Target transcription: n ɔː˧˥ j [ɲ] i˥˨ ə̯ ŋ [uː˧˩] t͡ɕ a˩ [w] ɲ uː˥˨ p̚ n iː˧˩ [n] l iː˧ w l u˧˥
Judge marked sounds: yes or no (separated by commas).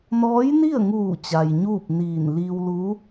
no, yes, no, yes